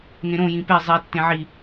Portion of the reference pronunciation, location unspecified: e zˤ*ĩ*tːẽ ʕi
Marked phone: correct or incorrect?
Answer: incorrect